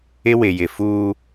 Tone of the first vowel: high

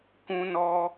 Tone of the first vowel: high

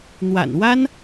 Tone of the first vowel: low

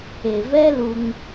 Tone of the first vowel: low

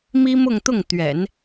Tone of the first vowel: high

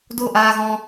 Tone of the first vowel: falling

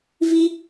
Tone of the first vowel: high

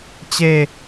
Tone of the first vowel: falling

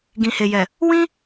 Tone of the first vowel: low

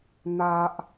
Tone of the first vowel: low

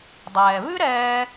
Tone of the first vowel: low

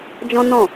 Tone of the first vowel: high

